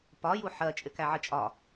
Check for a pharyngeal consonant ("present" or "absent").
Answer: present